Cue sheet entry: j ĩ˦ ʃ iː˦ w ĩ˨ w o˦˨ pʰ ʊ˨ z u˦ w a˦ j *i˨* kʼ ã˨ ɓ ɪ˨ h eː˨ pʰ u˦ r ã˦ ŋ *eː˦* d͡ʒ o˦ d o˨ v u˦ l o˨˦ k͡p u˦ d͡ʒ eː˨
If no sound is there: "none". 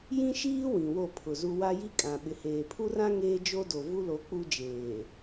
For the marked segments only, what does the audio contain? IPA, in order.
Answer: i˦, eː˦

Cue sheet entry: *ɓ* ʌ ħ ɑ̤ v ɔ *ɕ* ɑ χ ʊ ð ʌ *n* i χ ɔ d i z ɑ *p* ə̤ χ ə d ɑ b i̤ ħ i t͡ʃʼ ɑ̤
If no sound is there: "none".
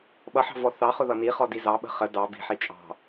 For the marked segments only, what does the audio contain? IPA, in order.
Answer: ɓ, θ, n, ɓ

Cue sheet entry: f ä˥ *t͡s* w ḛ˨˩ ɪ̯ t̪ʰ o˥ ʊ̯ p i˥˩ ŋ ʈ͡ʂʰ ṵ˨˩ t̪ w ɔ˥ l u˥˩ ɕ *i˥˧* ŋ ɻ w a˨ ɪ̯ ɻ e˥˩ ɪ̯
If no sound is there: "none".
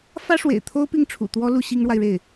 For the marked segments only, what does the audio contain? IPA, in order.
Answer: ʂ, i˥

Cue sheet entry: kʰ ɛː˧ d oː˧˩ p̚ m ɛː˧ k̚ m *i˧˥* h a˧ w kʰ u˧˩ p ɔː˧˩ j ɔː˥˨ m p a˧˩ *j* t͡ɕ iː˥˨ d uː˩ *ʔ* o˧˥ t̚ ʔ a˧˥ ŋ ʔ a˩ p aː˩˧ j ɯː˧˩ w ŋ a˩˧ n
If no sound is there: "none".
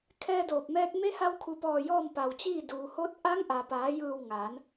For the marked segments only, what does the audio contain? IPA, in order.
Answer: e˧˥, w, h

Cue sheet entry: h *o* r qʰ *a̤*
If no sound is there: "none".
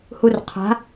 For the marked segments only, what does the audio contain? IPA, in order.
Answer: u, a̤

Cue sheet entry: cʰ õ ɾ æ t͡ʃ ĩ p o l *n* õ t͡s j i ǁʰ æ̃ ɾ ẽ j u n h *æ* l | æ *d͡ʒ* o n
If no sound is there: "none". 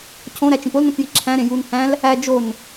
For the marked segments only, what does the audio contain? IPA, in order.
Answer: n, æ̃, d͡ʒ

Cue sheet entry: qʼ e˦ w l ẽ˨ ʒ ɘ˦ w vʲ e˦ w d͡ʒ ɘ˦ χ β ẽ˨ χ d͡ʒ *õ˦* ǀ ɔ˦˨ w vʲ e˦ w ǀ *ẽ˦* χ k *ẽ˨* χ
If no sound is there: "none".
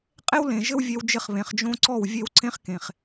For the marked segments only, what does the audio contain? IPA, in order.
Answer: õ˦, ẽ˦, ẽ˨

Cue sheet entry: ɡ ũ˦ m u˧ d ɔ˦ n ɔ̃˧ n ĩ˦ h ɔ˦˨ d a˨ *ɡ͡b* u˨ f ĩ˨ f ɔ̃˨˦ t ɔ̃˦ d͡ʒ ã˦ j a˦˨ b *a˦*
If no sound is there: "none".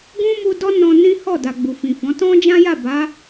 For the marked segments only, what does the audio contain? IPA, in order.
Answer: ɡ͡b, a˨˦

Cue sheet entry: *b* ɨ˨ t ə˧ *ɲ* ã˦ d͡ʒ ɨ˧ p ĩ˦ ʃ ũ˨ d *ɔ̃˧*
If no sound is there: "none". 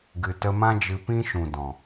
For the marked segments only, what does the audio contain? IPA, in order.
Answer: ɡ, m, ɔ̃˨

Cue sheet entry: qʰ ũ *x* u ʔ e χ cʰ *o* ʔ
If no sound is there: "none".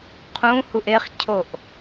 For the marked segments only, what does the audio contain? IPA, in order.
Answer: h, o

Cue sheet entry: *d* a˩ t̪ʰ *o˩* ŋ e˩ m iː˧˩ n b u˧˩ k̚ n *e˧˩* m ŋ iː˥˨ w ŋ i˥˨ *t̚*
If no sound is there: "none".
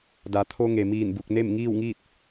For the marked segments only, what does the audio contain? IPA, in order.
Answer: d, o˧, e˥˨, t̚

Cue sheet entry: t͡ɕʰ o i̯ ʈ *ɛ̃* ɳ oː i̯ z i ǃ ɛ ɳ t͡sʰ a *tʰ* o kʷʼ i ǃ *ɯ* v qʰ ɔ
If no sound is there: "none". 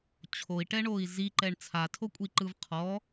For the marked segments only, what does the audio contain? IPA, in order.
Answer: ɛ, tʰ, ɯ

